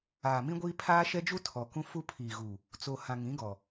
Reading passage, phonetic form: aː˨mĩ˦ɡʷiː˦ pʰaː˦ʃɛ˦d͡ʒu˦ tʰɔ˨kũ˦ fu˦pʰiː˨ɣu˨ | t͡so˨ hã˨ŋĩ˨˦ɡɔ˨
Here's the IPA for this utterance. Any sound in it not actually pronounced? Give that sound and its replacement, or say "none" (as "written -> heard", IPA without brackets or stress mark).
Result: none